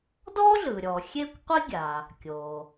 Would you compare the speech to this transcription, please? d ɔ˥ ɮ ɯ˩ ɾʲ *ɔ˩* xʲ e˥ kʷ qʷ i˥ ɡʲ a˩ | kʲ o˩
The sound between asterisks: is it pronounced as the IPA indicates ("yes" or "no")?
yes